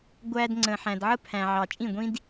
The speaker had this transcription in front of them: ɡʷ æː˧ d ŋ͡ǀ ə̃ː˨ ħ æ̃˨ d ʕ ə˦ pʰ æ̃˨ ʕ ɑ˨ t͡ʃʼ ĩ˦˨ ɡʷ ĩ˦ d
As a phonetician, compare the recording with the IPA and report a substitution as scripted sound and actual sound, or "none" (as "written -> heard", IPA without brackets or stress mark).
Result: none